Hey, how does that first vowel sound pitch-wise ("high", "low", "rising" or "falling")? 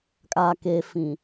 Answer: low